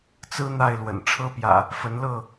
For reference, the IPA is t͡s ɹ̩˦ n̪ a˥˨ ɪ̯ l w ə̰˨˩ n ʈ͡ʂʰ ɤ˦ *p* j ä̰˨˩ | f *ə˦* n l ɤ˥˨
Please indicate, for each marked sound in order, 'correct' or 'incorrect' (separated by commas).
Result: correct, incorrect